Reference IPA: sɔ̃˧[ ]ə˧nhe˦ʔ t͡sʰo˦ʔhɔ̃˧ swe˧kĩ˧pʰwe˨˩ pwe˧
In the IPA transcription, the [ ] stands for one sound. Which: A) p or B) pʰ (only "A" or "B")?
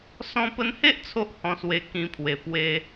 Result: A